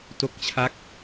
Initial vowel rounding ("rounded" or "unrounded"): rounded